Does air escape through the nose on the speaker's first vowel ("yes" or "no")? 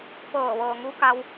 no